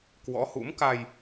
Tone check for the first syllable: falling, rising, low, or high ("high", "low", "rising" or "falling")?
rising